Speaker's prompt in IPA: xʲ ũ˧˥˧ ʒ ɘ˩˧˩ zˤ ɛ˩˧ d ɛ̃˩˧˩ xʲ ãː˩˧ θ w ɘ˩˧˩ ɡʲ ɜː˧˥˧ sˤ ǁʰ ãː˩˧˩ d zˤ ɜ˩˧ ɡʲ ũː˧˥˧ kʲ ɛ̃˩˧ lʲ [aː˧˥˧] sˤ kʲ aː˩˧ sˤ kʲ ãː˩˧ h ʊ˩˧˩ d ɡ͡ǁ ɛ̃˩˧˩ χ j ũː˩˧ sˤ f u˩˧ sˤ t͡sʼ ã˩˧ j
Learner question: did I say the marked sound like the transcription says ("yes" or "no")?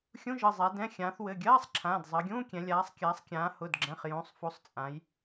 no